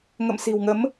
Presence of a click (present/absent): absent